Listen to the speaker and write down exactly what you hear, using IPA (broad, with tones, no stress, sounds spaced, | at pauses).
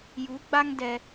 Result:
j u˨˦ ɡ͡b a˦ ŋ d ɛ˦